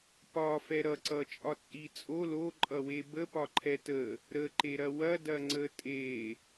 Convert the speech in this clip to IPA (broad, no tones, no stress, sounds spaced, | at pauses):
p ɒ f ɛ ɾ ʌ ǀ ʌ t͡ʃʼ ɒ t͡sʼ i t͡sʼ o l o ǃʼ ʌ w e b ə p ɒ ǃʰ ɛ t ə | ɾ ə ǃ e ɾ ɐ w ɐ d ɐ ŋ͡ǀ ə tʼ e